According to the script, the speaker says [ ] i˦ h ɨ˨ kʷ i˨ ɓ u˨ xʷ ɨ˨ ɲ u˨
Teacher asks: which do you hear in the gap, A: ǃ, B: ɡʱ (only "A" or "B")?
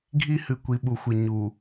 B